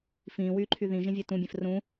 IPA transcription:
f ĩː w yː ǃʰ y ð ĩ ʒ ĩ vʲ e t ũ bʲ ẽ f r ũ

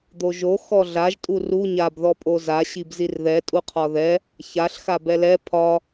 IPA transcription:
d̪ o ʒ o x ɔ ɮ a ʒ tʼ u r u ɲ a b ð ɔ pʼ o z a ɕ i b z i r ð ɛ tʼ u qʰ ɒ ð ɛ | ç a ɬ x a b ɛ l ɛ pʰ ɒ

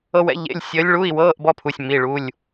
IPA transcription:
ɤ˥ w ɛ̰˧˥ ʎ ḛ˧˥˧ lʲ sʲ əː˧˥ lʲ ɭ u˧˥˧ i̯ w ɤː˧˥˧ ʔ b ɔ˥ pʰ u˩˧˩ sʲ m i˩˧˩ ɭ u˩˧˩ lʲ

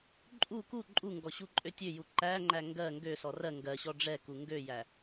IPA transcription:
ǃʼ u k u ǃʼ u ŋ ɡ ɔ ɕ u ǃʼ ø tʲ ø j u ǃ æ ŋ͡ǃ æ ŋ ɡ ɜ ŋ ɡ ø s ɔ r ɜ ŋ ɡ ɜ ɕ ɔ ɖ͡ʐ ɛ k u ŋ ɡ ø j æ

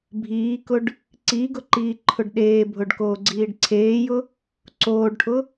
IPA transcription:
bʱ iː k ʊ ɖ | ǀ i ɡ ʊ ǃ iː ǃʰ ʊ ɖ ɗ eː bʱ ʊ ɖ k oː ɡ͡ǀ iː ɖ ǀʰ eː j ʊ | ǀ oː ɖ ʈʰ ʊ

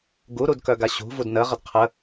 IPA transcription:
ɡ u ɾ u d k œ ɡ a ɕ ṳ v u d n ə ʁ ə d qʰ ə

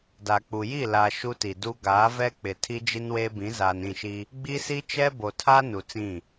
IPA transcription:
d a˨ k͡p u˨ j i˦˨ l a˨ ʃ u˦ t i˨ d u˦ ɡ aː˨˦ v ɛ˦ k͡p ɪ˨ tʰ i˦ d͡ʒ i˦ n w eː˦ b ĩ˨˦ z aː˨ n ĩ˦˨ ʃ i˦ | ɡ͡b i˦ s i˦ t͡ʃ ɛ˦ b o˨ tʰ a˦ n u˨ t͡s ĩ˦˨

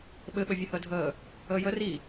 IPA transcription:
ɓ ɘ ɓ ɘ vʲ ɘ h əː dʱ əː | əː j ə r i

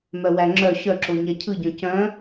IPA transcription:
m œ w æ ŋ͡ǁ œ ɕ œ ǁ o ɲ æ cʰ ɯ ɟ œ̃ c œ̃

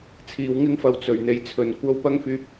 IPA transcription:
t͡sʰ iː˨˧ w ŋ ɪ˥ ŋ f ɐ˧ w t͡s ɵ˨˩ ɥ n̪ e˨ j t͡sʰ ɵ˨ n kʷ ɐ˥ w p ɐ˥ ŋ f yː˧ p̚

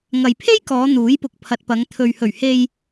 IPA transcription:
ŋ ɐ˨ j pʰ e˥ j k ɔː˨˧ n̪ uː˨˥ j p ʊ˨ k̚ pʰ ɐ˨ t̚ p ɐ˨˧ ŋ t̪ʰ ɵ˨ ɥ h ɵ˨˩ ɥ h e˨ j

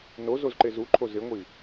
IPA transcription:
n o z o z ǃ e z u ǃʰ o z ɪ ŋʷ i

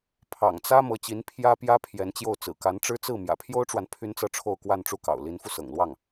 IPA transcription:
pʰ ɑ̰˨˩ ŋ t͡s ä˥ m ɤ˧˥ t͡ɕ i˧˥ n pʰ j ä˥ p j ä˥ pʰ j ɛ˧˥ n t͡ɕ j o˥˩ ʊ̯ t͡s ɹ̩˨˩ k a˧˥ n ʈ͡ʂ ɻ̩˥ t͡s ɹ̩˥˩ m j ä̰˨˩ pʰ j o˥ ʊ̯ ʈ͡ʂ w a˨ n pʰ y˥ n t͡s ɤ˥˧ ʈ͡ʂʰ o˥˧ ʊ̯ k w a˥˧ n ʈ͡ʂ u˥˩ k ɑ̰˨˩ ʊ̯ l i˧˥ n f u˧ s ɤ̰˨˩ ŋ l w ɑ˥˩ ŋ

